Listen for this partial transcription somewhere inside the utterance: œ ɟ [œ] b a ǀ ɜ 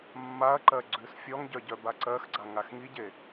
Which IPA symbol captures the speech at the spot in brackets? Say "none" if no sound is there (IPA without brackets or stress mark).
œ